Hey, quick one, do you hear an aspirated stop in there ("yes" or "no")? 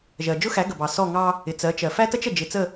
no